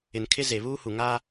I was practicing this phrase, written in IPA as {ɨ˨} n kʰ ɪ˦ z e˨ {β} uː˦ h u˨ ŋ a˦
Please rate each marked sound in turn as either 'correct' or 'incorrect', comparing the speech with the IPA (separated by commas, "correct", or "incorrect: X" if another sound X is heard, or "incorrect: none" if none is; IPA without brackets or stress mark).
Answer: incorrect: ɪ˨, correct